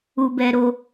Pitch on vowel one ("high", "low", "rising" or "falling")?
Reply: low